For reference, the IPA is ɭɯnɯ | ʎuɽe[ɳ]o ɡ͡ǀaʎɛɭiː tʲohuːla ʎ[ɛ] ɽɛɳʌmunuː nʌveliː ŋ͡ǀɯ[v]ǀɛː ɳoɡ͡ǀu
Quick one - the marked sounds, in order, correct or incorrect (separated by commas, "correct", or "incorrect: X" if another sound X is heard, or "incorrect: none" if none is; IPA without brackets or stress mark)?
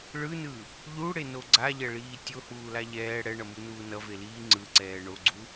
incorrect: n, incorrect: ɛː, incorrect: none